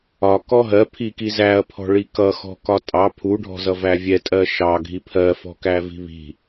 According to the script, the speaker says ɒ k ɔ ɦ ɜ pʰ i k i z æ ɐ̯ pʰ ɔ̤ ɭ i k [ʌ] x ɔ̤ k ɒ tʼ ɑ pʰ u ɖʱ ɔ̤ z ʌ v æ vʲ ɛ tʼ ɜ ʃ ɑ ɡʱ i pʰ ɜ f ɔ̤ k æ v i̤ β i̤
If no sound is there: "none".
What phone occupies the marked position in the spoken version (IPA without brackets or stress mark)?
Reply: ʌ